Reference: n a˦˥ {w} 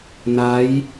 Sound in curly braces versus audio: incorrect: j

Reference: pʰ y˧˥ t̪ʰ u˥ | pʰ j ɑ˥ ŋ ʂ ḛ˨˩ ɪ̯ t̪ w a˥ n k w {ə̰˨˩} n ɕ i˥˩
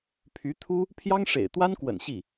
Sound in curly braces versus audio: correct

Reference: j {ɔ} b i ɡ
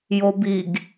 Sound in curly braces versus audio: incorrect: o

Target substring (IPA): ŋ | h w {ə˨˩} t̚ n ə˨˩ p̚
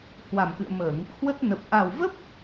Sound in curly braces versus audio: incorrect: ə˦˥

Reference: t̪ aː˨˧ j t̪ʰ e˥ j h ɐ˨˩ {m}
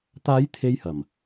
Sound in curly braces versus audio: correct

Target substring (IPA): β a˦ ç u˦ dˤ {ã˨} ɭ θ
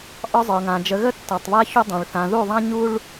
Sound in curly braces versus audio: correct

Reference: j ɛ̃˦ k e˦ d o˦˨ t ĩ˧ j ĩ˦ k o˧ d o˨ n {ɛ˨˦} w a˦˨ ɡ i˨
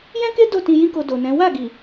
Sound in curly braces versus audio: incorrect: ɛ̃˨˦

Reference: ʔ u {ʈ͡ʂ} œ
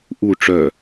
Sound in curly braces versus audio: correct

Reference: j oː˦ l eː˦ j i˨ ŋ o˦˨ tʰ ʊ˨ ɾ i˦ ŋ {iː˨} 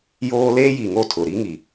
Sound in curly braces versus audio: incorrect: i˨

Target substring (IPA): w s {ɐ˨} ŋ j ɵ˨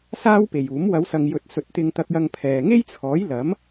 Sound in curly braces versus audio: correct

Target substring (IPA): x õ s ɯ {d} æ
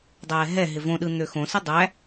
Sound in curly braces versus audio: incorrect: dˤ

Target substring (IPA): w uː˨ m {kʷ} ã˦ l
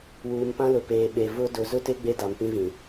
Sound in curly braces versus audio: incorrect: p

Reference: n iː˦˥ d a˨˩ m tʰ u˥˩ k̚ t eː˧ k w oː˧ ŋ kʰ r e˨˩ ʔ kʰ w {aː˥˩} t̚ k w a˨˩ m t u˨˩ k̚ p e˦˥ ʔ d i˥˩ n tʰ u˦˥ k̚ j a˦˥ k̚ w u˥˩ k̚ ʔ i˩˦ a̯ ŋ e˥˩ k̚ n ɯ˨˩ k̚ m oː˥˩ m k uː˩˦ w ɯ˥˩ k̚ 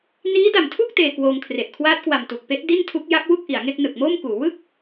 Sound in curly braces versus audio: incorrect: aː˦˥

